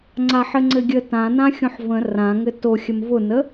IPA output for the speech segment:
ŋ͡ǀ a ħ ɘ ŋ͡ǀ ɘ ɡʲ ə t ã n ã xʲ õ ħ v ə̃ r ã ŋ ɘ t o xʲ ə m v ʊ n ə

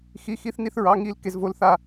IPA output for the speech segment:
x i˧˥˧ x i˦˥ θ n i˥˧ θ ɹ ɑ˧˥˧ ŋ i˦˥ l k e˦˥ z v o˦˥ l θ a˥˧

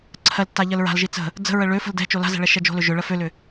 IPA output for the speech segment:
ǀʰ ɜ l tː a ʎ ɜ l ɹ a̤ l ʒ i t͡s ə̤ | d͡z ə̤ ɹ ə ɭ ø f ə̤ l d ɛ̤ t͡ʃ o l a̤ z ɛ̤ ɭ ɛ ʃ ɛ d͡ʒ o̤ l ø ʒ ʏ ɭ ɜ f ø l ʏ

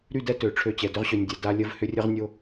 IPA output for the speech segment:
ɾ y˦˨ d ɛ˦ t ø˨ ʈ͡ʂʰ ø˦˨ t͡ɕ ɛ˨ d ʏ˦ ʁ ɕ ø˨ nʲ dʲ ɛ˨ d a˦ lʲ ə˦ v h ʏ˦ rʲ ə˦ ʁ nʲ o˦

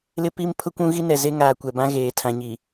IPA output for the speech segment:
l ɪ˦ p i˦ m pʰ ʊ˦ kʷ ũ˦ ɣ i˦ n ɛ˨ z e˦ ŋ aː˨ kʷ ɛ˨ b ã˦ ɣ eː˨ tʰ ã˨ ɲ i˨

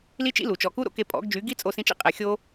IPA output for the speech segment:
l i˦ t͡ʃ ḭ˦ l u˨ t͡ʃ ɔ˨ k u˦ ɾ o̰˦ k e˧ pʼ ɔ̰˨˦ ɡ d͡ʒ y˨˦ ɡ i˦ t͡sʼ o˧ s ĩ˧ t͡ʃ ḭ˦ qʼ e˨ xʲ o˧

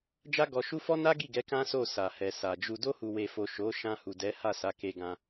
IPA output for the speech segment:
d͡ʒ a˦ ɡ ɔ˧ ʃ u˦ f ɔ˦ n a˦ ɡ i˦˨ ɡ ɛ˨˦ k ã˦ s o˦˨ s a˨ h ɛ˨ s a˨ d͡ʒ u˧ d o˧ h u˨ w e˨ f o˨ ʃ o˨˦ ʃ ã˧ h u˨ d ɛ˨˦ h a˦˨ s a˨˦ k e˧ ɡ ã˧

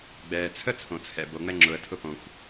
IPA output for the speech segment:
ɡ͡b ɛː˩ t͡sʰ ə˥ t͡sʰ õ˩ t͡sʰ ɛ̰˩ b o˩ ŋ͡m ɛ˥ ŋ͡ǁ ʊ˩ ə̯ tʰ ʊ˥ p õ˩ xʷ

